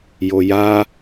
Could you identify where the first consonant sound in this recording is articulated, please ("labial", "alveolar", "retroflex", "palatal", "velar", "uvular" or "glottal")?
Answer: palatal